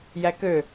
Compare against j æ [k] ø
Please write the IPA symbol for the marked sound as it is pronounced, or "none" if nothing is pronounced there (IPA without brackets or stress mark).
k